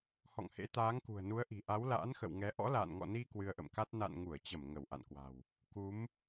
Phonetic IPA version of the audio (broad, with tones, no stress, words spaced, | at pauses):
hɔ̰˧˨ŋhḛ˧˥ t̪aː˨˦ŋkṳ˨˩ə̯nu˨˦ə̯ʔi̤˨˩ ʔa˨˦wla̰ː˧˥nxə̰˧˨w ŋɛ˨˦ ʔɔ̰˧˥la̰ː˧˨nŋɔ̰˧˨ni˧ kwɨ˧ə̯ʔə̰˧˨mka˦˥t̚ na̰˧˨nŋu˧˩ə̯t͡ɕə˧˩m ŋə˧˩w ʔa̰˧˨nkwa̤˨˩w | ku˨˦m